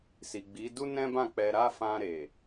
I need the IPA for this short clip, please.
s i˨ ɡ͡b i˨˦ d u˦ n ɛ̃˦ b ã˦˨ k͡p ɛ˧ ɾ a˦ f ã˧ ɾ e˨

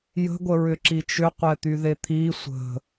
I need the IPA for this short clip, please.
j ə̤ ɡʷ ə ɹ ʏ ǁ i t͡ʃ ʏ qʷ ɛ t̪ y ð e t̪ʰ i sʷ ə̤

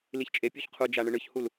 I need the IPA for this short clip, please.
l i ç t͡ʃʼ e pʲ u ç qʰ u d͡ʒ a ɳ ɯ ɳ ɯ ç h u l

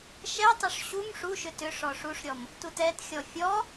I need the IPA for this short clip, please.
ʃ ɛ tˤ ʏ ʂ ɕ u m ʂ u ʃ ʏ t ʏ ʂ ɔ ʂ u ʂ ɾʲ ɔ m | t u t ɛ t xʲ ɔ fʲ ɔ

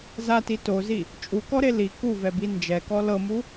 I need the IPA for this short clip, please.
z a t i t o z i | t͡ʃʼ u k ɔ ɾ e l i k u v ɛ b i n d͡ʒ ɛ k ɔ l ɤ m u

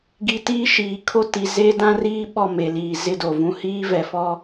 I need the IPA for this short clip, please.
ɡ i˨ t iː˦ ʃ iː˨ kʰ o˦ t i˨ z e˦ d ã˦ r iː˦ ɓ ɔ˦˨ m e˨ l iː˨ z ɪ˦ d o˨ v ũ˦ h iː˦ v ɛ˨ f ɔ˦

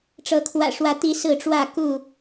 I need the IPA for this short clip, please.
ʈ͡ʂ ɤ˨˦ kʰ w ä̰˨˩ ʂ w ä˨˦ t̪ i˨˦ s ɹ̩˥˨ ʈ͡ʂ w ä˥˨ k u˥˨

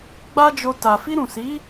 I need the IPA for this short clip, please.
ɡ͡b a˦ d͡ʒ o˧ t a˨ f i˧ ɾ ũ˨ s i˨˦

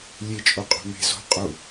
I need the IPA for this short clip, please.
lʲ e t͡ʃʼ o qʼ o̤ m e̤ z o̤ qʼ u

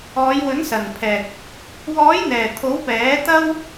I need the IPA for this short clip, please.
ɔː˨˧ j w ɵ˨˥ n s ɐ˨˩ n pʰ ɛː˨ k̚ | w ɔː˨˥ j n̪ ɛː˨˩ t̪ʰ o˨˥ w p ɛː˨˥ t̪ ɐ˥ w

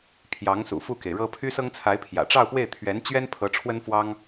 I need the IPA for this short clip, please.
pʰ j ɑ˧˥ ŋ s ṵ˨˩ f u˥˩ k e˩ ɪ̯ ɻ ɤ˥ pʰ y˥ s ɤ˥ ŋ t͡sʰ a˧˥ ɪ̯ pʰ j ä̰˨˩ ʈ͡ʂ ɑ˥˧ ʊ̯ p w e˥˩ ɪ̯ t̪ʰ ɥ ɛ˧˥ n t͡ɕ ɥ ɛ˥ n pʰ ɤ˧˥ ʈ͡ʂʰ w ə˥ n f w ɑ˥ ŋ

